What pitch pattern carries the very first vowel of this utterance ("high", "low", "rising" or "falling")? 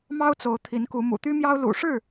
high